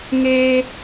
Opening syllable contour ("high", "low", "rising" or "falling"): high